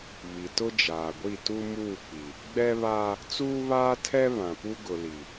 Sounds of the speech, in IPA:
β i˨ t ʊ˦ d͡ʒ aː˨ ɡʷ i˦˨ t u˦ m uː˦˨ k͡p i˨ | ɡ͡b ɛ˦ β aː˦ | t͡s uː˦ β aː˦ tʰ ɛ˦ β ã˨ p u˦ ɡ ʊ˨ l i˨

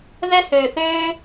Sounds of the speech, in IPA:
ð ɛ˦ h øː˨ θ øː˦

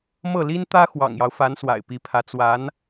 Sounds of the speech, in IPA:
m ɤ˥˩ l i˥ n t̪ ä˥ x w ɑ̰˨˩ ŋ j ɑ˦ ʊ̯ f a˧˥ n s w a̰˨˩ ɪ̯ p i˧˥ pʰ ä˧˥ t͡s w a˧˥ n

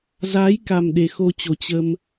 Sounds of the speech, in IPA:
z aː˨˦ j k a˨˩ m ɗ e˨˩ x o˧ t͡ɕ o˨˩ t͡ɕ ə˧ m

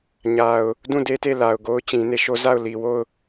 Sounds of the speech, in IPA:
ɲ a˨ ʊ̯ | d ũ˦˨ d e˦ t e˦˨ l a˨ ʊ̯ ɡ o˦ ʊ̯ t͡ɕ ĩ˨ n e˦˨ ʃ o˦ z a˦˨ ʊ̯ l i˨ w o˦˨ ʊ̯

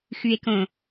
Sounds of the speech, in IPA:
x ʉ e̯ k õ

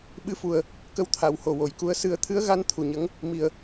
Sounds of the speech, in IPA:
ɓ ɨ˧ f u˨˩ ə̯ | k ə˧˥ w t̪ʰ a˨˩˨ w h o˨˩ w o˨˩ j k u˧ ə̯ s ɨ˨˩˦ ə̯ t̪ʰ ɨ˧˥ ə̯ ɣ a˧˥ n t̪ʰ u˨˩ ɲ ə˧˥ ŋ | m i˨˩ ə̯

